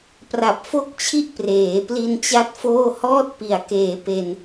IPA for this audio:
p r a˨˩ p̚ f o˥˩ k̚ t͡ɕʰ i˥˩ ʔ p r eː˩˦ p l i˧ n t͡ɕ a˥˩ t̚ f oː˥˩ h ɔː˦˥ t̚ p i˩˦ a̯ k eː˩˦ p e˧ n

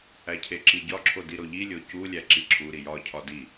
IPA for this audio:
æ cʰ e ǁ i ɟ ɒ ǁʰ o d i ɾ o ʎ i lʲ o c u lʲ æ ǁ i ǁʰ u ɾ i j ɒ cʰ ɒ d i

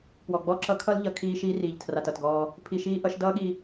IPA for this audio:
p w ɔ˨ ɡ͡b ɔ˦˨ ǁ ʌ˦ kʰ ʌ˦ l ʎ ʌ˨ kʰ iː˧ ʃ iː˦ r iː˨ ʎ tʰ r a˨ t ʌ˨ t ɡ ɔː˧ | pʰ i˧ ʃ iː˦ ʔ ʌ˨˦ ʃ d ʌː˦ ɠ i˧

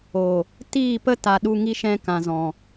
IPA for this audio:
o˨ | t iː˦˨ p ə˦ t a˨ ɗ u˧ ŋ i˧ ʃ ɛ̃˧ k ã˨ z ɔ̃˨

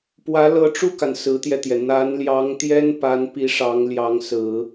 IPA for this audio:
p w ä˧˥ l ɤ˧˥ ʈ͡ʂ u˥˩ k a˩ n s ɹ̩˧˥ t̪ j ɛ˧ t̪ j ɛ˩ n̪ a˧˥ n l j ɑ˧˥ ŋ t̪ j ɛ˥ n p a˧˥ n p i˧˥ ʂ ɑ˧˥ ŋ l j ɑ˧˥ ŋ s ɹ̩˨˩˦

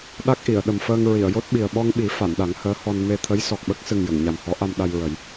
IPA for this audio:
ɗ a˦˥ k̚ ʔ i˨˩˨ ə̯ ɗ ə˨˩ m f əː˧ ŋ ɹ i˨˩˨ ə̯ j o˦˥ t̚ ɓ i˨˩ ə̯ ɓ ɔ˧ ŋ ɓ i˨˩˦ f a˨˩˨ n ɗ a˨˩˦ ŋ h əː˧˥ h ɔ˧ n m e˧ t̪ʰ ə˧˥ j s ɔ˨˩ k̚ ɓ ə˦˥ k̚ s ɨ˨˩ ŋ j ə˨˩˨ ŋ ɲ a˨˩ m h ɔ˧˥ ʔ a˧ m ɗ a˧ j ɹ ə˨˩˦ j

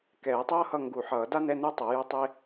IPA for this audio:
k ɛː˨˩˦ tˤ ʌː˥ h ʌ˦˨ ŋ ɡ u˨˩˦ ħ ʌː˨˩˦ d a˥ n ɛ˧˥˧ n u˥ tˤ ʌ˨˩˦ j o˥ tˤ e˥

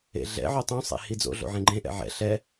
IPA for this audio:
ḛ ɮ ɛ̰ ʕ o tˤ ũ sˤ ḛ h i d͡z o̰ ɮ o̰ ʕ ẽ ɡ͡ǃ ẽ ʔ ɛ̰ ʕ ɛ̰ ɬ ɛ

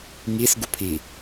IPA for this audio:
ŋ i s ɡ u pʰ i

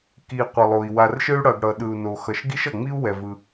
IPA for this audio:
k i˩ qʷ ʌ˩ lˠ o˩ i̯ w a˩ r ʃ ɯ˥ y̯ ɽ ʌ˩ ɡ ɽ ʌ˩ ɗ ɯ˩ u̯ n o˩ x ʌ˩ ʃ ɡ i˥ ʃ ʌ˩ ŋ͡m i˥ u̯ w ɛ˩ v ɯ˩

